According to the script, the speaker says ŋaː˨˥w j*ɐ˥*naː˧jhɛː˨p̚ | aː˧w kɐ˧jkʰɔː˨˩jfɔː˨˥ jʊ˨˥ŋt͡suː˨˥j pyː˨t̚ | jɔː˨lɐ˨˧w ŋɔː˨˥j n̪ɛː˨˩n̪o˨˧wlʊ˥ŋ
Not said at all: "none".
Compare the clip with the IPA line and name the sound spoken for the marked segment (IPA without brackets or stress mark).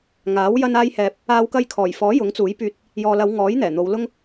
ɐ˧